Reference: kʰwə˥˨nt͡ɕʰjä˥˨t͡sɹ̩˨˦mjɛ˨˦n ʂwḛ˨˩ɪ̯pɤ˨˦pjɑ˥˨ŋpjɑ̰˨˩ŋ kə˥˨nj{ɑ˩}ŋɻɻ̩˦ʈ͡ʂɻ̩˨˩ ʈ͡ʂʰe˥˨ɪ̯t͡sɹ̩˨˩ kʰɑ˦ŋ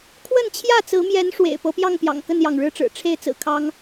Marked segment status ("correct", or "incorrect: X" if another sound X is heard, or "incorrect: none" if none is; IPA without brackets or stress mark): correct